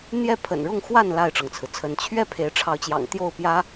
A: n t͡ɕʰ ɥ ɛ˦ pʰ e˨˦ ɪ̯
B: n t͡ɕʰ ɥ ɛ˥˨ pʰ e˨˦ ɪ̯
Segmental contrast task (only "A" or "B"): B